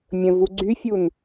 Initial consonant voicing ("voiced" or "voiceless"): voiced